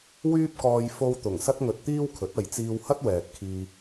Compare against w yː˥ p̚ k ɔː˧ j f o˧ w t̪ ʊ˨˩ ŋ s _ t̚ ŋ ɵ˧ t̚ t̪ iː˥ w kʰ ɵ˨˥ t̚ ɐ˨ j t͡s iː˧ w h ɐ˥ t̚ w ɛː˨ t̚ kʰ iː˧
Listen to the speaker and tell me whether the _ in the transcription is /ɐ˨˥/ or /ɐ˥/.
ɐ˥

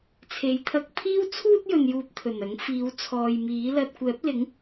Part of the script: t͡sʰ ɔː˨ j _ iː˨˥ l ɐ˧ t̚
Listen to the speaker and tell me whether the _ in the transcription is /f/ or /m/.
m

